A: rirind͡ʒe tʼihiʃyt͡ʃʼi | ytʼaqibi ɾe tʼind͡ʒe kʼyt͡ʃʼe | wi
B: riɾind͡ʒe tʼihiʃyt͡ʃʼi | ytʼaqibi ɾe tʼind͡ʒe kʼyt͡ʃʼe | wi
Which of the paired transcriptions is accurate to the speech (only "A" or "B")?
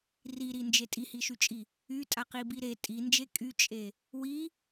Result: B